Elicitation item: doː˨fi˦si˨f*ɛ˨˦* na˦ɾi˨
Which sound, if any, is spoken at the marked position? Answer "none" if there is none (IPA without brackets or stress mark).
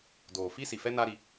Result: ɛ˦